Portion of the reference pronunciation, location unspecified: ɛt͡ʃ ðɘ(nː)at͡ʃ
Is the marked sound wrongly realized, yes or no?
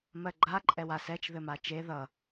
yes